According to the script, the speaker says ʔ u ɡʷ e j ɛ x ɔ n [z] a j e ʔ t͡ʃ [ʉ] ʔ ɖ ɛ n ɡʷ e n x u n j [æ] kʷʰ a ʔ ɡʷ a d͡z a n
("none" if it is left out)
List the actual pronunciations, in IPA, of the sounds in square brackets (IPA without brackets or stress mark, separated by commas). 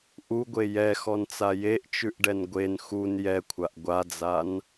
t͡s, ʉ, ɛ